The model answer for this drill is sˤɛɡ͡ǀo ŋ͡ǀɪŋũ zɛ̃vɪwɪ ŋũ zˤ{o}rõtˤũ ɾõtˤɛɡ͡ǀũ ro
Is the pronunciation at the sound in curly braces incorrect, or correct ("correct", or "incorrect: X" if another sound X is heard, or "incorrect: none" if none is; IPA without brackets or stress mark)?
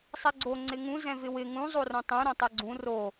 correct